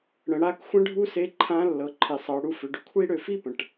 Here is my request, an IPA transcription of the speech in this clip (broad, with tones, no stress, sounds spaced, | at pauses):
ɽ ə̃˩˧ ɽ a˧˥ k xʷ ə̃˥ ɖʱ u˥ s e˧˥ ǃʰ ã˧˥ lː ɤ˩˧ ǃʰ i˩ sˤ ɤ˩˧ ɽ u˧ f ʏ˩˧ ɖ ʏ˧ kʷʰ i˥ ɽ ø˧ f i˥ p ə̃˩ ʈ